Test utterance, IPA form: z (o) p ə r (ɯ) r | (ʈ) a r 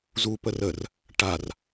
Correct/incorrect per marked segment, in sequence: incorrect, incorrect, correct

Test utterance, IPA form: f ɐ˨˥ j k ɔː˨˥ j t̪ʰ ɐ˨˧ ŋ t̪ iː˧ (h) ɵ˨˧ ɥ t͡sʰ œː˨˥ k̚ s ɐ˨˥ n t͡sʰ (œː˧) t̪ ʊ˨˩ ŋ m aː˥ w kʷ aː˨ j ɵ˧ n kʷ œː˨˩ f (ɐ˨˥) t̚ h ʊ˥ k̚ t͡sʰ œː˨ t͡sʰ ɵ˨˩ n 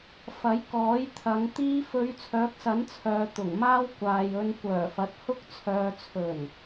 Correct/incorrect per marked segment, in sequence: incorrect, incorrect, correct

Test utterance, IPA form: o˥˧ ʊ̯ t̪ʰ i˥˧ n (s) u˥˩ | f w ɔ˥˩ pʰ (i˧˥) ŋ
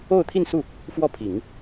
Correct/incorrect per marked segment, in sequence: correct, incorrect

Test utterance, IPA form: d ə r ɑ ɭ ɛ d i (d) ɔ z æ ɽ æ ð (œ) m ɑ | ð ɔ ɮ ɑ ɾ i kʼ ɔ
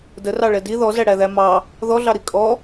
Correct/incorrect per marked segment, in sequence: incorrect, incorrect

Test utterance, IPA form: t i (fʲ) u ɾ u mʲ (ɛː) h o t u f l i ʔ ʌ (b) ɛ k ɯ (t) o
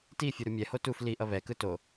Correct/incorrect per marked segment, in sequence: correct, incorrect, incorrect, correct

